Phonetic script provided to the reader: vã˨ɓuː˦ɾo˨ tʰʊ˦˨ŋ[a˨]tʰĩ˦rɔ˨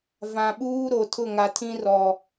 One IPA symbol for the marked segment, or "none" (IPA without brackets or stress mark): a˨